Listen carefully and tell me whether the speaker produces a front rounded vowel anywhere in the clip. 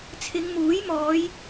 no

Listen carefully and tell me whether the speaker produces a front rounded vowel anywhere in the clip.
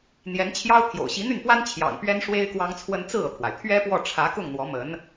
yes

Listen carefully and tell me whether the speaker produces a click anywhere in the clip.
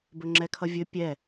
yes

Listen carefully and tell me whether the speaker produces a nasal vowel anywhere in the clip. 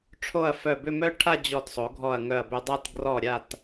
no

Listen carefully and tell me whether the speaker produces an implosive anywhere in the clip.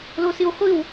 no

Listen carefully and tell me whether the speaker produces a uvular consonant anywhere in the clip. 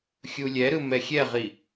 yes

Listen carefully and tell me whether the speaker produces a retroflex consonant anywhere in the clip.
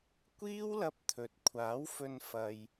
no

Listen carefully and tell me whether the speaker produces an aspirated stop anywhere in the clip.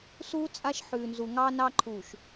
yes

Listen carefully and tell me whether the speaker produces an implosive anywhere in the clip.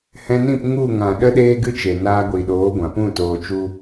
yes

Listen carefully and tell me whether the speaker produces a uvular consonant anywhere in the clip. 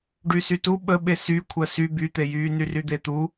no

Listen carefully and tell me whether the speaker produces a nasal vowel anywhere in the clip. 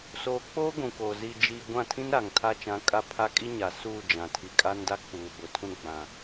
yes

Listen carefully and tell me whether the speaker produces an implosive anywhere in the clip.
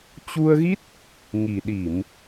yes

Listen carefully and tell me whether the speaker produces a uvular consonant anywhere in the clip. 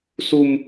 no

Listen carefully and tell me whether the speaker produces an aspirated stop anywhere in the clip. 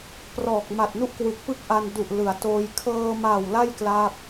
yes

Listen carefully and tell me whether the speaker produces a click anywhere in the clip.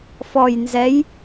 no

